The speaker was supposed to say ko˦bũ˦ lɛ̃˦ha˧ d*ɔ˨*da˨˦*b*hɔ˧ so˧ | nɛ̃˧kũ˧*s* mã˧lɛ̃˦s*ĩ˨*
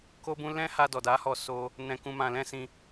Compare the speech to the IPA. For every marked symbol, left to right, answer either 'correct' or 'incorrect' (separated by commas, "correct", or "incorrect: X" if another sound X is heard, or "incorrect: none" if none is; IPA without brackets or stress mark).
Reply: correct, incorrect: none, incorrect: none, incorrect: ĩ˧